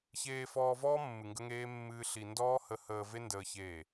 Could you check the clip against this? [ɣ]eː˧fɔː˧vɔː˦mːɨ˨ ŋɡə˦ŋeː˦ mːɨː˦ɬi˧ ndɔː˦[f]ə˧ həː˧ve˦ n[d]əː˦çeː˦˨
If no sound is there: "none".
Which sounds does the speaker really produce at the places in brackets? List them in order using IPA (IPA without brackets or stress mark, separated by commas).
ç, h, d